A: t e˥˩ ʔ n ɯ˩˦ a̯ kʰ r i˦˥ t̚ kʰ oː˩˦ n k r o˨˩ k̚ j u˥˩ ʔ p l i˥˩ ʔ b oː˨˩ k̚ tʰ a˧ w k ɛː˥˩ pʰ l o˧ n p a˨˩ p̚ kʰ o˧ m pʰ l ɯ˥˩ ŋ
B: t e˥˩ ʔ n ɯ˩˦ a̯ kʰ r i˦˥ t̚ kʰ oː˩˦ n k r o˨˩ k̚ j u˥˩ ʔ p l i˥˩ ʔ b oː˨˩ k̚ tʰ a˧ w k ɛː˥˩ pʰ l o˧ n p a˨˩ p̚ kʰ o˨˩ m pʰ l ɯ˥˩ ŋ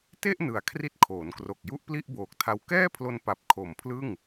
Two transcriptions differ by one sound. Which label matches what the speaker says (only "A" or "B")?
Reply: B